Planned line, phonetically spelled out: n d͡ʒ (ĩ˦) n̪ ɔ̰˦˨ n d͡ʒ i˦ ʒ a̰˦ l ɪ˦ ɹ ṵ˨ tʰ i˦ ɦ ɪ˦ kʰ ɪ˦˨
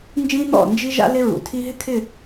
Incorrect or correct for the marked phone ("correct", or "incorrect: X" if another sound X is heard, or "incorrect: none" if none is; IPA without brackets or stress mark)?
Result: correct